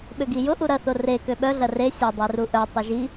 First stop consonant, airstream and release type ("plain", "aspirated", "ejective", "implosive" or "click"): implosive